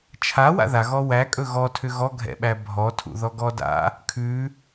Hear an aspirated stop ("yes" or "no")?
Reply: yes